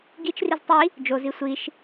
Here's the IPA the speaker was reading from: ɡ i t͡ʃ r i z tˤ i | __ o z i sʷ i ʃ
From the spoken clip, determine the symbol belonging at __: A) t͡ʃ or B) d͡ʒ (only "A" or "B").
B